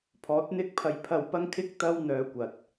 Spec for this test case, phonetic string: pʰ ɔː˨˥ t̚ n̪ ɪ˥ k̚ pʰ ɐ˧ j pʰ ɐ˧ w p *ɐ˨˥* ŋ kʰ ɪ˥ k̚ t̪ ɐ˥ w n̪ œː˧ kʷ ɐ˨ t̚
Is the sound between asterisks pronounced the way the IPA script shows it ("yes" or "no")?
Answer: no